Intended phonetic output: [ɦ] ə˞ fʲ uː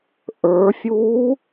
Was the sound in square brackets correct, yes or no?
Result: no